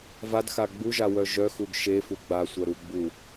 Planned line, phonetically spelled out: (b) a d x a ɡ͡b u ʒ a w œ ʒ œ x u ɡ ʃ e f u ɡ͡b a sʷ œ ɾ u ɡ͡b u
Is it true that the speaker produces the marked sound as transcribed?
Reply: no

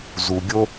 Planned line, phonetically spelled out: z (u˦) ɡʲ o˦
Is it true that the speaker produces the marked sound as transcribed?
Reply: no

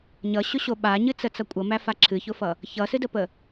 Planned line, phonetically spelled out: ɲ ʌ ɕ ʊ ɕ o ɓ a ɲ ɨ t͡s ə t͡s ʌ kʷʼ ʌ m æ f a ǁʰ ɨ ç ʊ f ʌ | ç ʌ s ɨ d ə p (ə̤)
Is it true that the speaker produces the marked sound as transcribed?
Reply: no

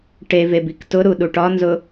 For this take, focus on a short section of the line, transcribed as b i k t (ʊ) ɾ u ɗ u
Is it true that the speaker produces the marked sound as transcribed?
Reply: yes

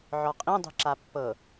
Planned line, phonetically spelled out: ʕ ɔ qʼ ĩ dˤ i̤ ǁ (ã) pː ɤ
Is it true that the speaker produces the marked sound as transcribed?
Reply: no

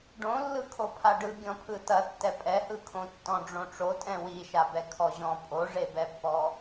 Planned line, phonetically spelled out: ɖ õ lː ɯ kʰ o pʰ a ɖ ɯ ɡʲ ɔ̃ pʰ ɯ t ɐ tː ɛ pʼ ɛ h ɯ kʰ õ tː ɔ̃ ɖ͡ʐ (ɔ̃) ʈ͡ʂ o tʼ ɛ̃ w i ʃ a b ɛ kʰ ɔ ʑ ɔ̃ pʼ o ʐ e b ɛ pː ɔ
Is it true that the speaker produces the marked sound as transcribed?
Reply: no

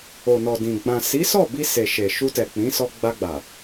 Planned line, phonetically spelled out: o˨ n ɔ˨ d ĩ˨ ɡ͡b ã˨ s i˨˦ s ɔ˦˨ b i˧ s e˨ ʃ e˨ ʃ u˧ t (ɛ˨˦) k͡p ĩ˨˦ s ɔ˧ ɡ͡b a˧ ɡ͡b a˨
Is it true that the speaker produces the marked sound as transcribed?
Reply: no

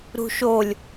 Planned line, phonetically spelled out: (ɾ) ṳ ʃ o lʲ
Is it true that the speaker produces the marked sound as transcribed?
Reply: yes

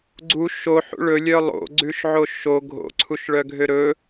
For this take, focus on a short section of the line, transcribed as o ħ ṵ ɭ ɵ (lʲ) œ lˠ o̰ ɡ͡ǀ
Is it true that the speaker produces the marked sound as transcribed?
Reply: yes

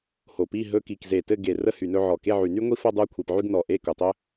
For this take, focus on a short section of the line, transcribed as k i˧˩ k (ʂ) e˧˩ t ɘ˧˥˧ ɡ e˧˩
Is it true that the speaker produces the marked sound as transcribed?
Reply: no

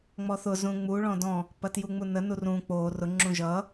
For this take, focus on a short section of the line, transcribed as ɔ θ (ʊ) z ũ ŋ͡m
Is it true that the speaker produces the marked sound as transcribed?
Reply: yes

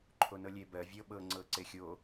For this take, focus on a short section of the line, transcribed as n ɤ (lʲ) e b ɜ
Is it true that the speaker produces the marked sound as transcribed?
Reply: yes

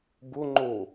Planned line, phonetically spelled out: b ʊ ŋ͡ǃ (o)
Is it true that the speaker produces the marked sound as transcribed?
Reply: yes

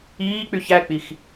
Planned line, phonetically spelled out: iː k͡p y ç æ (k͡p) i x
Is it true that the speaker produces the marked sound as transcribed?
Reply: yes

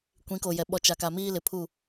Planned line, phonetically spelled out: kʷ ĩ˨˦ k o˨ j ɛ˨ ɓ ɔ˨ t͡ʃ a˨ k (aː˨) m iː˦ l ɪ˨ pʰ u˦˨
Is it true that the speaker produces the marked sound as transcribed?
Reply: no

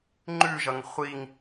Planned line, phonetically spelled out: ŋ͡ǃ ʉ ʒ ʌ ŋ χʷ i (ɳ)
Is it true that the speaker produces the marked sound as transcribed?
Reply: no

